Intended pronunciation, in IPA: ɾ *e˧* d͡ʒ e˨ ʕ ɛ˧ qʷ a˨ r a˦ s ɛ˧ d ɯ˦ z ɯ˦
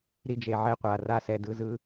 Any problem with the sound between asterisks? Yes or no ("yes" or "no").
yes